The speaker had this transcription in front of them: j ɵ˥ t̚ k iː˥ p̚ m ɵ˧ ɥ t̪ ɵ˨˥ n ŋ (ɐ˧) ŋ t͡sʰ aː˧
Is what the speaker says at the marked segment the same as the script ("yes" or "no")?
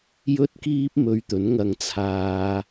yes